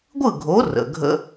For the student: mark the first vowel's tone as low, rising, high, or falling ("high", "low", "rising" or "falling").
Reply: falling